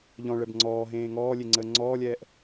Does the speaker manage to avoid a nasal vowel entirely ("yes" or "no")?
no